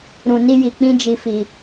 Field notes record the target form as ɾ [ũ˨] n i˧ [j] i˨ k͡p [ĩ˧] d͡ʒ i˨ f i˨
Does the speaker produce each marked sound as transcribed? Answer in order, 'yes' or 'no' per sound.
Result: yes, yes, yes

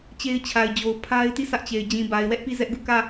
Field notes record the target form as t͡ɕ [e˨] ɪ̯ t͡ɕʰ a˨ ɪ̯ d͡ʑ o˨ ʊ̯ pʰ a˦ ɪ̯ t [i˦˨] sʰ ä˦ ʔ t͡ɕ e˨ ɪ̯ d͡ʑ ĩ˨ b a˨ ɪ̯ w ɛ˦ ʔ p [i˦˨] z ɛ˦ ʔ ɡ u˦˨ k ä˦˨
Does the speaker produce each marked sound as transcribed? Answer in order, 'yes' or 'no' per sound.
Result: no, yes, yes

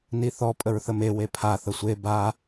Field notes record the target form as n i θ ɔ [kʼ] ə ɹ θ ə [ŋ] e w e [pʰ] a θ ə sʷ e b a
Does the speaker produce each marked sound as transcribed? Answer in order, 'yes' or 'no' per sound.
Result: no, no, yes

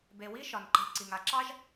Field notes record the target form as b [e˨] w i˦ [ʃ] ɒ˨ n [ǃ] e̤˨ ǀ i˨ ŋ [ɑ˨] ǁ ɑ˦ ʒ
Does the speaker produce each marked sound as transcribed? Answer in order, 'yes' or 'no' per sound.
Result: yes, yes, yes, no

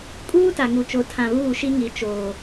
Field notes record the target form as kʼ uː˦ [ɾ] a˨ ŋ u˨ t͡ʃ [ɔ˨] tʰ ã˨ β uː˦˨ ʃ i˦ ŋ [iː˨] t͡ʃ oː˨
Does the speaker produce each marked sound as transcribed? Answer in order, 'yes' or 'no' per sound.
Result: no, no, no

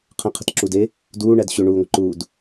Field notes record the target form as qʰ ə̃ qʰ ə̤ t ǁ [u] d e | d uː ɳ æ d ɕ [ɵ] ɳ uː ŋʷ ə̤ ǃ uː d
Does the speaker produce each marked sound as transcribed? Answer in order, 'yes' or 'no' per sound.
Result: yes, yes

